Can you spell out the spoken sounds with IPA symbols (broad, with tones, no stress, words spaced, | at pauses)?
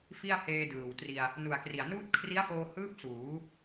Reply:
fi˥˩a̯heː˧dɯː˨˩wtri˧a̯ | nu˨˩a̯kri˨˩a̯nuː˥˩t̚ kʰri˦˥a̯foː˧hɯː˦˥p̚ suː˩˦